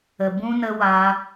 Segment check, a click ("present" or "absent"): absent